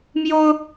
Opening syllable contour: high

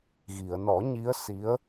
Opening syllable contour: low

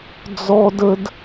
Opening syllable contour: high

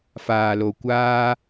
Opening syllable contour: low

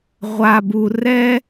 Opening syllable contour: low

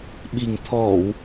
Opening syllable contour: low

